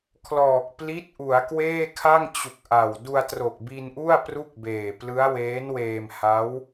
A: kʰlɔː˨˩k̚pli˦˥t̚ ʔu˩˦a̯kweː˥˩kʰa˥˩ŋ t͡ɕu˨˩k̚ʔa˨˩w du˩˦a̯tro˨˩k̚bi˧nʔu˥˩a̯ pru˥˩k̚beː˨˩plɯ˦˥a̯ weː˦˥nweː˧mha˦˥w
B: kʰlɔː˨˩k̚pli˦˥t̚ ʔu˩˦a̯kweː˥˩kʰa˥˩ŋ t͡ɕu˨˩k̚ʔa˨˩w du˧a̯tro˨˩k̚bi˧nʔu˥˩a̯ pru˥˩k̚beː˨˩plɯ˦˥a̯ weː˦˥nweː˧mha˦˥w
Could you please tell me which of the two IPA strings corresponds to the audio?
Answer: B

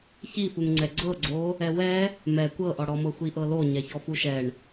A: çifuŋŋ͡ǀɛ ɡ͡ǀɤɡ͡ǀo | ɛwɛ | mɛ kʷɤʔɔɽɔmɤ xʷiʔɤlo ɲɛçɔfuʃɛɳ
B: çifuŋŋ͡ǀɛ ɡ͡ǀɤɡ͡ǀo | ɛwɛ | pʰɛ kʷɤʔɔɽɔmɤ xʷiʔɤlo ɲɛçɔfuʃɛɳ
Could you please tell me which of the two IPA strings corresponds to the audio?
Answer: A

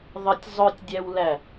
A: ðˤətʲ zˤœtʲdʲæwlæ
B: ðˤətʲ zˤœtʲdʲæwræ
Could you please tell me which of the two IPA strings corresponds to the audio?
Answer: A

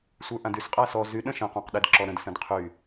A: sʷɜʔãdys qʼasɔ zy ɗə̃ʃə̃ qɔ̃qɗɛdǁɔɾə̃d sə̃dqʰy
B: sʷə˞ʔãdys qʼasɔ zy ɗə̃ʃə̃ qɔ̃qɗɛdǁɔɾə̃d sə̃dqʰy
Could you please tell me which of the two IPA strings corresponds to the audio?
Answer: B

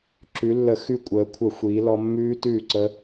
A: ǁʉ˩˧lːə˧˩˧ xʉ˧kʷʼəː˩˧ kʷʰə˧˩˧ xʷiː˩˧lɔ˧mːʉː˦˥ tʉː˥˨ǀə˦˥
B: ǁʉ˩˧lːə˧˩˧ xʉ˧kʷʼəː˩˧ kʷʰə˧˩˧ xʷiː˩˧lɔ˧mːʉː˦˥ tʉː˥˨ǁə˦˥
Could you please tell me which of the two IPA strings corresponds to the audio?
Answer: A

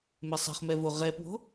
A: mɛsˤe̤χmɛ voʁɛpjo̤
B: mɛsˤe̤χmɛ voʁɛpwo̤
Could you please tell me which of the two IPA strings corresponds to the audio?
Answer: B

